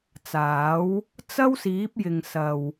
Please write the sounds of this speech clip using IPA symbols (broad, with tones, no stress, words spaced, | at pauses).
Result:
t͡saː˨˥w | t͡sɐ˥wsiː˨˥p̚jɪ˨ŋ sɐ˨w